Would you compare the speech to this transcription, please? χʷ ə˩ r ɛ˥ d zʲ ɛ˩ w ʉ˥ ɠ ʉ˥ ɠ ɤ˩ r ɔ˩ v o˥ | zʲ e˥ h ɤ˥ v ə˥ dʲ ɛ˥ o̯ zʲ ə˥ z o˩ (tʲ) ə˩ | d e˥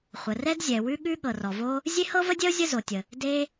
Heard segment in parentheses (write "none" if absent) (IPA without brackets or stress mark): tʲ